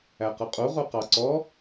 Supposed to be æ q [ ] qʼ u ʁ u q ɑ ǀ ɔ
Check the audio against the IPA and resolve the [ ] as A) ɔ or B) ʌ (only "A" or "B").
B